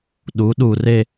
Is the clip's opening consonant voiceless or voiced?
voiced